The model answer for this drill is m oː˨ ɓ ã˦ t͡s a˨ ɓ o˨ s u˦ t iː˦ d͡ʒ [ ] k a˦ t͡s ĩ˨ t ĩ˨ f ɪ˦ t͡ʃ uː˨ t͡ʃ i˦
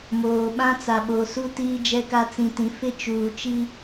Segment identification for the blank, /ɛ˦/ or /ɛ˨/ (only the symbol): ɛ˦